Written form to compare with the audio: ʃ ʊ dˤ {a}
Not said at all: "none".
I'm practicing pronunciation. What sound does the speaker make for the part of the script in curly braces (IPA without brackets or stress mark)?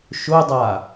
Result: a